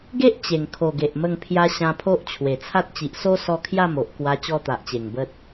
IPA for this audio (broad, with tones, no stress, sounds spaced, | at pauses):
ɡ e˦ ʔ t͡ɕ e˨˩ ŋ kʰ o˨˩ ɡ e˨ ʔ m ə˧ ŋ pʰ j a˧ ɕ ã˧ pʰ o˦ ʔ t͡ɕʰ w e˨˩ t͡sʰ a˦ t̚ t͡ɕ i˨ ʔ s o˦ s ɔ˧ kʰ j a˥˧ m o˨ ʔ k w a˧ t͡ɕ ɔ˧ t̪ a˨ ʔ t͡ɕ e˨˩ ŋ b ə˦ t̚